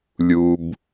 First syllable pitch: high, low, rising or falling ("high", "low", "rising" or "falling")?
low